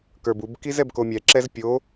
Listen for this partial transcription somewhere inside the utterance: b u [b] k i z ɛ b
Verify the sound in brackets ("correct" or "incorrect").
correct